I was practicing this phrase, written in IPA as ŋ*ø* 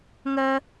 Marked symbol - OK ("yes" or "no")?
no